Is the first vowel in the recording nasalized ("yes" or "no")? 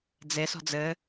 no